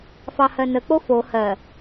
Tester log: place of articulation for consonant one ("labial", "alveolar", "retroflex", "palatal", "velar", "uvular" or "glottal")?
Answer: labial